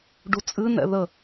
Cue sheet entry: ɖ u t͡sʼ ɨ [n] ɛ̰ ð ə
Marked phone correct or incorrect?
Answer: correct